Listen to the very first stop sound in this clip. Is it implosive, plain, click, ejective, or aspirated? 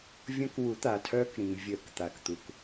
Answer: plain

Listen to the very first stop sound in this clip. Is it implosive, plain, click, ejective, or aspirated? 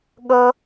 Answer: implosive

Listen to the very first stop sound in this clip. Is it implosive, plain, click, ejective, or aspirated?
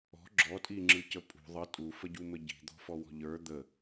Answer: click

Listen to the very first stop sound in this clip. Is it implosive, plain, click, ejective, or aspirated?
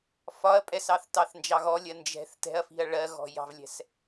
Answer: ejective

